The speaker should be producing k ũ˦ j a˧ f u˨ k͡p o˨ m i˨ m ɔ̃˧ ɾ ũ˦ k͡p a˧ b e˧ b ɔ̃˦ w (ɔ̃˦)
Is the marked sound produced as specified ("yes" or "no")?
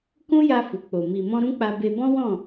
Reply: no